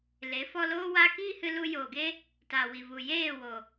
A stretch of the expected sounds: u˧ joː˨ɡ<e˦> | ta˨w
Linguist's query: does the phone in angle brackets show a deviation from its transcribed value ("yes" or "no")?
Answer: no